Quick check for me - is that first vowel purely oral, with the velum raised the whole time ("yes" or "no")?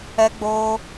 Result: yes